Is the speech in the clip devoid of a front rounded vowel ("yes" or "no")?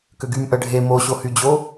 no